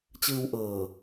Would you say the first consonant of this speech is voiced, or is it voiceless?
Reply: voiceless